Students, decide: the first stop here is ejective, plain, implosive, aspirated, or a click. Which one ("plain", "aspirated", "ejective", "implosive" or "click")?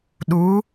implosive